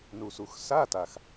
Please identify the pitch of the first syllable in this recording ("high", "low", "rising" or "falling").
low